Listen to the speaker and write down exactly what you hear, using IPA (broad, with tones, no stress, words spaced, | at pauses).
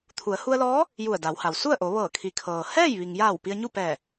t̪ʰu˩˧ə̯ hu˧ə̯lɔː˧˥ | ju˧˩ə̯da˩˧wha˩w su˥˨ə̯ʔo˩˧ ʋɤː˧˩kʰi˩˧kʰɤː˩ hɛː˥˨j ʋi˩ŋja˧˩w pi˧ə̯ɲu˥˨pɛː˧˩